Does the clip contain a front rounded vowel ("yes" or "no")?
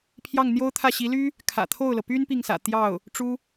yes